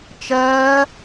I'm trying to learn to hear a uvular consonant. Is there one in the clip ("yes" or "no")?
no